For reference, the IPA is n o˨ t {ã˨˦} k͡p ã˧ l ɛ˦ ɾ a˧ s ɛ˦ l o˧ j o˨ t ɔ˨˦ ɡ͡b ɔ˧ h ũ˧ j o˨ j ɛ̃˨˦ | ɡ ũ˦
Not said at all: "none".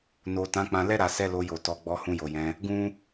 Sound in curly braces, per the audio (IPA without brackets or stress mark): ã˨˦